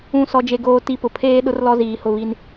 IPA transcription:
ũ˨ sɔ˨d͡ʒe˨ɡoː˨ ti˦pʊ˨ pʰeː˦ ɗʊ˦rlɔ˦ziː˨hʊ˦˨ βi˦n

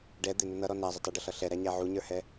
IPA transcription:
ɖɛ d̪ɪnʊ nʌɾɔ næzˤɪ tˤʌɖəɬʌ ɬɛɾæɲæ ʕuɲə˞hɛ

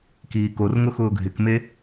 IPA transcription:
kiːkorŋʊ xʊːɡʱɪkme

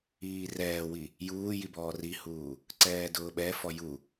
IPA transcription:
iːrɛːwi | juː jibɔːrihuː | ǀɛːdʊːɓɛfɔ ju

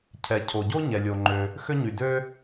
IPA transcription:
cʰɛ˩ cʰo˩ɟo˥ ɲɛ˩lʲo˩ŋ͡ǃø˩ | xø˥ɲy˩dø˥

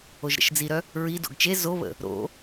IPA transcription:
oʒɾə̰ʃd͡ziɾœ | ɹi do̰ɡt͡ʃe zoβə̰ | ɾo̰

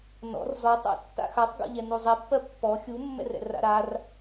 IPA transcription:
nɔ̰r zɔtˤ a̰tːa̰ xatˤɡɔ̰ʎɛ nuzˤɛpːɜ pːɔ xʲumːɛ̰rɛ̰r a̰ɾar

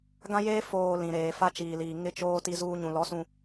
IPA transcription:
ɡã˦jeː˦ foː˨ lĩ˨ɾeː˨ fa˦t͡ʃiː˨liː˨ ŋɪ˦t͡ʃoː˦ ti˦zuː˦ ɲũ˨lɔ˨˦ sũ˨

